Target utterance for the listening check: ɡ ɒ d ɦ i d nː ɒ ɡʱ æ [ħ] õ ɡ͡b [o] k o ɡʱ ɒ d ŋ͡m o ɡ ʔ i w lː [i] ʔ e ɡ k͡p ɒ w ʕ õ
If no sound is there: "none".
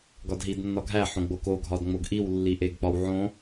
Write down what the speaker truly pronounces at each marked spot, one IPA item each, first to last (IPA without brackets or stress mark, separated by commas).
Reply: ħ, o, i